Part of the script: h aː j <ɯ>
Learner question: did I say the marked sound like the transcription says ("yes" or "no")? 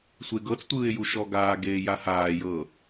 no